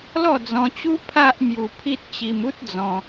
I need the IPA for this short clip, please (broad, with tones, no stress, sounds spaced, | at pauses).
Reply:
l ɔ˥˧ d͡z ɔ̃˧ t͡ɕ u˦ pʰ a˦ ʔ m j u˧ pʰ i˦ t̚ t͡ɕ i˧ m u˦ t̚ d͡z ɔ̃˧